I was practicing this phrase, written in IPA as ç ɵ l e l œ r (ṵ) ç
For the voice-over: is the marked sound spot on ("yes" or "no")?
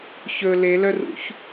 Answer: yes